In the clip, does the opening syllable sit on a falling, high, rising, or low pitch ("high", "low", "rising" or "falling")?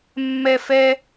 high